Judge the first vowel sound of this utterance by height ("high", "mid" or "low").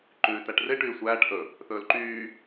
high